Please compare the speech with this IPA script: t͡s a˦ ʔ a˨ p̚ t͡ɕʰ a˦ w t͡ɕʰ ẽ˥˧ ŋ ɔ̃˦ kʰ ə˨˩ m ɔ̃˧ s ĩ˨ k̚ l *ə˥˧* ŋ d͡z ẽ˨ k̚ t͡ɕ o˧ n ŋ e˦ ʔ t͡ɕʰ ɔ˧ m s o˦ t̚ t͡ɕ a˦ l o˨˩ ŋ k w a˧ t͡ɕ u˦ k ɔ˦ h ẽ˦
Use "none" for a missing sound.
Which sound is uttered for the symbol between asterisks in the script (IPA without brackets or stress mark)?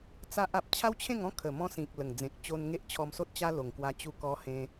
ə˨˩